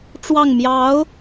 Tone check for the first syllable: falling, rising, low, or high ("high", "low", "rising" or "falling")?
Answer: falling